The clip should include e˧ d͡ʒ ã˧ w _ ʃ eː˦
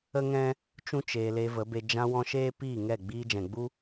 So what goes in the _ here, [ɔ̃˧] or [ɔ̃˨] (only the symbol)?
ɔ̃˧